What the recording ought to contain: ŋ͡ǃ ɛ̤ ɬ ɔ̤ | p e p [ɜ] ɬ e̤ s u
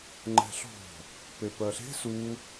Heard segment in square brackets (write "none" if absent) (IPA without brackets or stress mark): ɜ